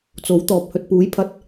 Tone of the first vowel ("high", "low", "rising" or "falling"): rising